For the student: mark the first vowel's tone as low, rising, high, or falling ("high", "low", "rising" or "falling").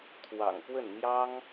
low